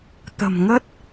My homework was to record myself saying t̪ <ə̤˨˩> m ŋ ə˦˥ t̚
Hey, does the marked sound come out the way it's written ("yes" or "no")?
yes